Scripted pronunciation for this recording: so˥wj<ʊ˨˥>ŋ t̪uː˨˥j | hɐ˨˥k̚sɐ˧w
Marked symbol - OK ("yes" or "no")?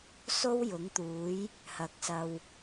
yes